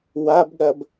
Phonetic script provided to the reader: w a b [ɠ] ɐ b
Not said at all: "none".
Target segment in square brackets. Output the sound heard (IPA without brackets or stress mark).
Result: ɠ